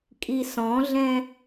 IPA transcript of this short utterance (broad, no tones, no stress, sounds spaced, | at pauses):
kʼ i s ɔ̃ ɮ ɛ̃